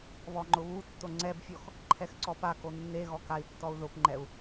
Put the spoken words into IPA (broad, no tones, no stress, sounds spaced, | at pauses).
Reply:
β ɔ ŋ͡ǃ ʊ β u tː o ŋ͡ǀ ɛ b fʲ ɔ x | ǃʰ ɛ x ǀ ɔ p a k o nː e ɣ ɔ k a i̯ tː ɔ u̯ ð ʊ p ŋ͡ǃ ɛ u̯